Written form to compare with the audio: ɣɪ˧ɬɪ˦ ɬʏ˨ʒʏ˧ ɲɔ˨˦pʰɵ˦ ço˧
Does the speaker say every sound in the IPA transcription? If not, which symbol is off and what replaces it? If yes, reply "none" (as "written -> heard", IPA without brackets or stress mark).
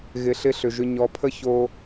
ɵ˦ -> ə˦